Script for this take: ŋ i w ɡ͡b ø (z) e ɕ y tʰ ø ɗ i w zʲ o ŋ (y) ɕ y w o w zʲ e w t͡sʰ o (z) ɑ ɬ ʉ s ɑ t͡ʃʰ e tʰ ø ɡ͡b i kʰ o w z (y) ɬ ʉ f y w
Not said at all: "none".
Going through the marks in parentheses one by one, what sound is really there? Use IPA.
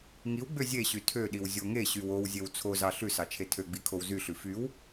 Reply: zʲ, e, z, y

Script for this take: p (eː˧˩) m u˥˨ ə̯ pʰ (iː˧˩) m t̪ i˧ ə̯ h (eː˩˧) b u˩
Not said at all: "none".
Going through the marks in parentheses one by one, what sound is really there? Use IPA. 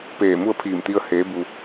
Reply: eː˧˩, iː˧˩, eː˩˧

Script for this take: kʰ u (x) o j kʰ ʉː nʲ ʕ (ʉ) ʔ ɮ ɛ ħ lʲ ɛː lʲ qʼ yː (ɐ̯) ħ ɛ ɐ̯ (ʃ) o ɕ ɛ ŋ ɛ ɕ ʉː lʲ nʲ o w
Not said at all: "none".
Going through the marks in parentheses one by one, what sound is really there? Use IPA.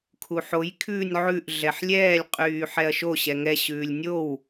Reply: ħ, ʉ, none, ʃ

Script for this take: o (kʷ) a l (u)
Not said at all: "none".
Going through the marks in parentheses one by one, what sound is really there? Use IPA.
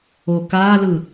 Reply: k, ɯ

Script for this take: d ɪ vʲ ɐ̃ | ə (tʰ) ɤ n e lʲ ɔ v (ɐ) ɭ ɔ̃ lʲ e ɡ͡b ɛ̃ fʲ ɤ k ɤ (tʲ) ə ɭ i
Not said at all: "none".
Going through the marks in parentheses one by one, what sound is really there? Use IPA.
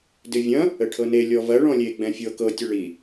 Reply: ʈʰ, ɐ, tʲ

